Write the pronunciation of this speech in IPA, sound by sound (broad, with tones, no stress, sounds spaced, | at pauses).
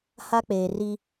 h a˦ k͡p eː˨ r i˦